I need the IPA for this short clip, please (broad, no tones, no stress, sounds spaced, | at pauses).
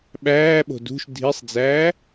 ɓ æː ɓ o̤ d ṳ ʃ dʱ i sˤ d͡z æː